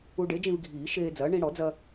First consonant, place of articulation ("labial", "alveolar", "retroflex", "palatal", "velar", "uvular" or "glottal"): retroflex